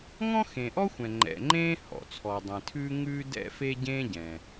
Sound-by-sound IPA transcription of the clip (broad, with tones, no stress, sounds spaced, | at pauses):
ŋ ɔ̃˥ x ẽ˩ ʔ ɔ˥ xʷ ɛ̃˩ ŋ͡ǃ ɛ̰˩ ŋ͡ǃ ẽː˥ h ɔ̰˩ t͡sʰ ɔ˩ dˤ ẽ˩ tʰ ʉː˥ ŋ ʉː˥ d ɛ̰˥ f e˥ ɟ ẽː˥ ɟ ɛ̃˩